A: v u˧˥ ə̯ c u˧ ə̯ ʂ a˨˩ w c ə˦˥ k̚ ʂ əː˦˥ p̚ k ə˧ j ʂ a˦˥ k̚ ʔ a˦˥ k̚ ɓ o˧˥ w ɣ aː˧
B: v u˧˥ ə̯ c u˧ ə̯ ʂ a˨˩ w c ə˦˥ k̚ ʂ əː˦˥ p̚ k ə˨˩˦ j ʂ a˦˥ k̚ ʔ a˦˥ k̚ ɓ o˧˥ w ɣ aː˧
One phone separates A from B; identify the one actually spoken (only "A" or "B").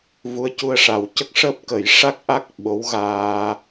B